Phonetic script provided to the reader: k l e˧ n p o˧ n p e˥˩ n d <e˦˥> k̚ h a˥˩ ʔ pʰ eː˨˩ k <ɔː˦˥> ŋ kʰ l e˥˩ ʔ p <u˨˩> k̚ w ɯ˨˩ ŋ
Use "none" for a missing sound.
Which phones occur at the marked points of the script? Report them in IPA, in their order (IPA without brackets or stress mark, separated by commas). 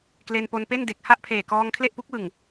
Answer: e˨˩, ɔː˧, u˦˥